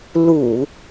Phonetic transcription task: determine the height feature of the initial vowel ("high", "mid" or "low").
high